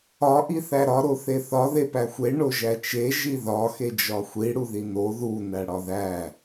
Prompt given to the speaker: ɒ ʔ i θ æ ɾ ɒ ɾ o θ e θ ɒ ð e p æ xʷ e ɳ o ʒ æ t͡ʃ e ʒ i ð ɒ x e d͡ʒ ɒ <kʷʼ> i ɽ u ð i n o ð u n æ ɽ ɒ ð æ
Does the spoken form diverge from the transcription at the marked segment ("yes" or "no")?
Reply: yes